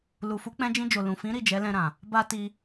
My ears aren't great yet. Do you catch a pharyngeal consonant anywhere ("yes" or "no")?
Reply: no